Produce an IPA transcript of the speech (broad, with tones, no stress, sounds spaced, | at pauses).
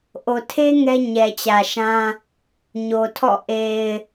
ʔ o˨ tʰ e˦ ŋ ɛ˦ ɲ ɛ˨ t͡ɕ ä˨ ʃ ã˦ | ɲ o˨ tʰ ɔ̰˦˨ ʔ e˨ ɪ̯